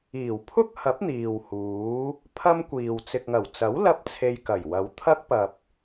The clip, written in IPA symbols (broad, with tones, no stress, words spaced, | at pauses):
iː˨˩wpʰʊ˥k̚hɐ˨˥p̚ n̪iː˨whuː˨˥ | pʰɐ˥mkʷiː˨w t͡sɪ˨k̚ŋɐ˨˩wt͡sɐ˨˥w lɐ˥p̚t͡sʰe˧j kɐ˨˩jwɐ˨˧wt̪ʰɐ˥k̚ pɐ˨p̚